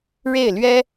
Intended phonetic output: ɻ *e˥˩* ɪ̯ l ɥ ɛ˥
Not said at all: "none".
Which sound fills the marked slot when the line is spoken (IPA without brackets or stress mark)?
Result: e˥˩